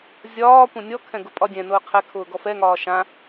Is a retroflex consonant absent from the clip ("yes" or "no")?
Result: yes